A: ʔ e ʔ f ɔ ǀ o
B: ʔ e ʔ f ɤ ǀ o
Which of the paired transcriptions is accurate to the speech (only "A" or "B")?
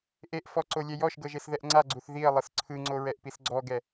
A